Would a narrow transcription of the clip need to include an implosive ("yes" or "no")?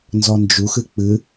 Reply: no